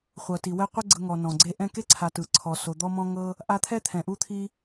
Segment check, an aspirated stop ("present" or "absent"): present